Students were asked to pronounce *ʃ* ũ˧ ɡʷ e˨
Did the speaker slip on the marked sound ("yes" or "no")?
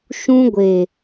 no